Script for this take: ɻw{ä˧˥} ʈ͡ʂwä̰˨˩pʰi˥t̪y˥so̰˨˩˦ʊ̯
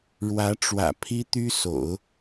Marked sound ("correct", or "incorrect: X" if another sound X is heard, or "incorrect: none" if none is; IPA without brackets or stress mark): correct